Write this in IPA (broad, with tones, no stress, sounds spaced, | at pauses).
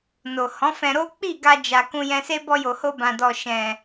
n o˨ h ɔ̃˨˦ f ɛ̃˧ ɾ o˦ k͡p i˦˨ ɡ a˧ d͡ʒ a˨ k ũ˧ j ɛ̃˧ s e˦ b ɔ˧ j o˨ h o˧ b ã˨ d ɔ˨ ʃ ɛ̃˨